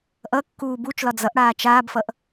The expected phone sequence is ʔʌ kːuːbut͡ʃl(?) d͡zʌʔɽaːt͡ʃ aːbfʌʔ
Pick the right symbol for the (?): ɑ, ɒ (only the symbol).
ɒ